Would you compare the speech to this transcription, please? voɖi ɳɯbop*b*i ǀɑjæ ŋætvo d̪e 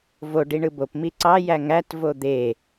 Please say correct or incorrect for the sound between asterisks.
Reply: incorrect